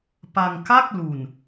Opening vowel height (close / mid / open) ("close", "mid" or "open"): open